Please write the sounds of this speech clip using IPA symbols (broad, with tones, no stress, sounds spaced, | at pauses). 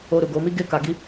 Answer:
o˧ ɾ u˨ ɡ o˨˦ m i˦ ɡ e˦ k a˧ ɡ i˦